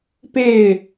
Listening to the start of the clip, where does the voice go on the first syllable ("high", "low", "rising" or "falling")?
falling